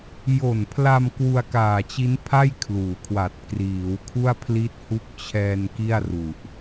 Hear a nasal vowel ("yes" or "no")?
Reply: no